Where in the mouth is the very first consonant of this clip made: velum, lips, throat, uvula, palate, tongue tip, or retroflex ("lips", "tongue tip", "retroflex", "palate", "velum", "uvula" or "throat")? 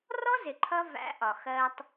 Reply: tongue tip